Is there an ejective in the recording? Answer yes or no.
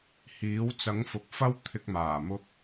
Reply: no